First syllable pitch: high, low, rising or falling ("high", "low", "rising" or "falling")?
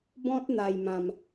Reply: high